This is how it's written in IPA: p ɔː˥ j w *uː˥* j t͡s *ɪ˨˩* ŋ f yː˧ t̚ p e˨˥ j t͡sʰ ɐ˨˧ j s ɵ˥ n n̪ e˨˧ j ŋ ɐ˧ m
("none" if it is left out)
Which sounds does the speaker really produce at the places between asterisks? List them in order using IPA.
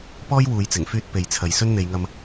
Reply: uː˨, ɪ˨˩

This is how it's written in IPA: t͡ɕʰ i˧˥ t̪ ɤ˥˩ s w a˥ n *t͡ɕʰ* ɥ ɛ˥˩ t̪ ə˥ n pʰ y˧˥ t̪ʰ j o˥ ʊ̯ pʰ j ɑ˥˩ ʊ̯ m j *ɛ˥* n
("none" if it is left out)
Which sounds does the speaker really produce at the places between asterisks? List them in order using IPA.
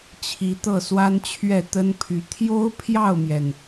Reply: t͡ɕʰ, ɛ˩

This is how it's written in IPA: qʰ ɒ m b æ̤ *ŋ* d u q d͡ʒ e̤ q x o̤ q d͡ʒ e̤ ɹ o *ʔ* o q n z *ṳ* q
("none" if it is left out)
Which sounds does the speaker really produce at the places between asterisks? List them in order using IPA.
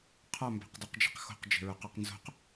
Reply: q, q, o̤

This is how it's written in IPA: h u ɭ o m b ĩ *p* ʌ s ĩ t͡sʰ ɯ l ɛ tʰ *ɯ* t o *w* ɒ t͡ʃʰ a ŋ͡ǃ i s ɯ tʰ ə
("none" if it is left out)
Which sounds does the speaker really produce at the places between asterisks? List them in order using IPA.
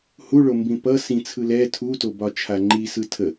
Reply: p, u, b

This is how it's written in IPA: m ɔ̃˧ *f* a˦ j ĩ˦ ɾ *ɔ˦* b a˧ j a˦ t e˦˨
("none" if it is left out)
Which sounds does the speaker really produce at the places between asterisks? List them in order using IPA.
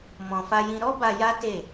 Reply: f, ɔ˦

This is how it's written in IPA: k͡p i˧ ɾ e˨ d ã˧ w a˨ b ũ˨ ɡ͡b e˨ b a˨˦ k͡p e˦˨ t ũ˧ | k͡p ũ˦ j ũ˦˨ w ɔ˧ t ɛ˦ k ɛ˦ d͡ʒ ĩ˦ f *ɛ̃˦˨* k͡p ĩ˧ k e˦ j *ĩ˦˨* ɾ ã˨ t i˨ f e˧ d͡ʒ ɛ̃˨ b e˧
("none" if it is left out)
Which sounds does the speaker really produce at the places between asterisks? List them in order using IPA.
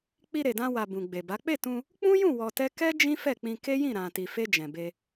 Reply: ɛ˦˨, ĩ˦˨

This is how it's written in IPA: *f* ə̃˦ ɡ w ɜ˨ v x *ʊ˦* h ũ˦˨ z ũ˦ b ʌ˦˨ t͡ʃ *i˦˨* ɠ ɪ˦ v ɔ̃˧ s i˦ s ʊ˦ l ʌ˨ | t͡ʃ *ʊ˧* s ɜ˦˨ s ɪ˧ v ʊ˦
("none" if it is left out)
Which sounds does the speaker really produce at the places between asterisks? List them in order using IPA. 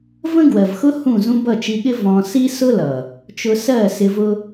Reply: v, ʊ˦, i˧, ʊ˧

